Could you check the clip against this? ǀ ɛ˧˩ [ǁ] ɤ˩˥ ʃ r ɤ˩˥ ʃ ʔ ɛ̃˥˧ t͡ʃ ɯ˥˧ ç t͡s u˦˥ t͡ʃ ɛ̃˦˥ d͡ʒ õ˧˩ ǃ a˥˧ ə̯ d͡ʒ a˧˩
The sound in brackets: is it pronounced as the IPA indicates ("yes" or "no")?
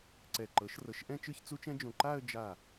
no